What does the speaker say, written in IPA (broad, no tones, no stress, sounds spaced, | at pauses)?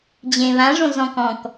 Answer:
d͡ʑ ẽ β ã ʐ õ z ɔ̃ k ɔ̃ k